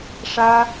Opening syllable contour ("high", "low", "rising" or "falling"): high